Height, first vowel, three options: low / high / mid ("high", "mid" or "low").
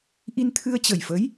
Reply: high